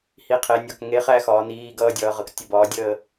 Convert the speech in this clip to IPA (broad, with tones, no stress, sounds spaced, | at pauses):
h i˩˧˩ qʰ e˩˧ nʲ ɒ˩˧˩ k ŋ e˨˥ χ æ˦˨ x ɒː˩˧ n iː˩˧˩ ɡ ʌː˦˨ dʲ ʌː˩˧ ʁ ʌ˩˧ k tʲ ə˦˨ b ɒː˨˥ dʲ əː˦˨